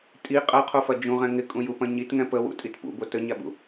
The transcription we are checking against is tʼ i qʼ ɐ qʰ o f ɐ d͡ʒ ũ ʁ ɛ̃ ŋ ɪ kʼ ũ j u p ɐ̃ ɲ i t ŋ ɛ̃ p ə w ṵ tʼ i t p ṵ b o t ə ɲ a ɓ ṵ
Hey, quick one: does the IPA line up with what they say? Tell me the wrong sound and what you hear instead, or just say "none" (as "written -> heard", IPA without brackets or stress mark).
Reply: none